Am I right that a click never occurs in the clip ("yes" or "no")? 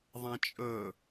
yes